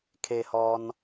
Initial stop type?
aspirated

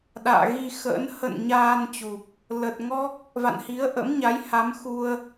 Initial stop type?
implosive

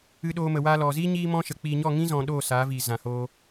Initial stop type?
implosive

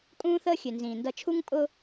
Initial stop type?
ejective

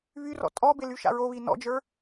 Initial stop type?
ejective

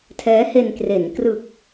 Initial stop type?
aspirated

